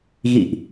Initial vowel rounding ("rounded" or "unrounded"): unrounded